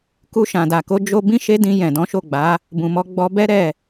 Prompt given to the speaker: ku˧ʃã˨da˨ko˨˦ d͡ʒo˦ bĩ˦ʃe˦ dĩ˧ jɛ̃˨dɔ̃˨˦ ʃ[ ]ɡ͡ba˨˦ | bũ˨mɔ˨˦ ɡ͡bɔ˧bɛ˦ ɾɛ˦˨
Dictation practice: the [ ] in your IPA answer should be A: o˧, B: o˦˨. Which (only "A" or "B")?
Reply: B